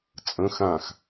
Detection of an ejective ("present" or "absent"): present